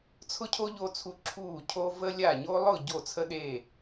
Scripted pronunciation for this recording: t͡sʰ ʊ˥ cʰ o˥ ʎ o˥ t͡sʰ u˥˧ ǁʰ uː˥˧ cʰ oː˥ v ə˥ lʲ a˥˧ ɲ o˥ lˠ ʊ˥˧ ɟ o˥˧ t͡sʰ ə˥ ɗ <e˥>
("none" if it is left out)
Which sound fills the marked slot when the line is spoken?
e˥˧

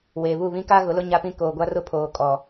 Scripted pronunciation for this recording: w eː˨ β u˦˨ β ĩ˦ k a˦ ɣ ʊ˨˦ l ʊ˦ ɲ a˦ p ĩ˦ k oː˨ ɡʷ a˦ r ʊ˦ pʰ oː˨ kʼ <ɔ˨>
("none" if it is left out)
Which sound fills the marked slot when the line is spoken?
ɔ˨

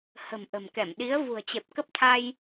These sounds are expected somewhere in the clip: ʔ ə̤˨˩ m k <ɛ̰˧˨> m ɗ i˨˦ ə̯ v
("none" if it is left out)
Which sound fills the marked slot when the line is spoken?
ɛ˧˩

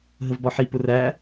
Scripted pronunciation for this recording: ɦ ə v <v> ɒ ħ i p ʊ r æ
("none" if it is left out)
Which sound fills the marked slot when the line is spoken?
b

